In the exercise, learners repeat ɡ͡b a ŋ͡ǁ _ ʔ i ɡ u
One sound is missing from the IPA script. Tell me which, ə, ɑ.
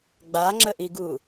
ə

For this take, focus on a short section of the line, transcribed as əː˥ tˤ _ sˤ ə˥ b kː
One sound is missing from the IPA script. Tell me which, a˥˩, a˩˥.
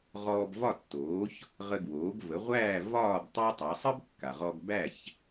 a˩˥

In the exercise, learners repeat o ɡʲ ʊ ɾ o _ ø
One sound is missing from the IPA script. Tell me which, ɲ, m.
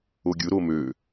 m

